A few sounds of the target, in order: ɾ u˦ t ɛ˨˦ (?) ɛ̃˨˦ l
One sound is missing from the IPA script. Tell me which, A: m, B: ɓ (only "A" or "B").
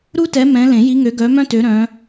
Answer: A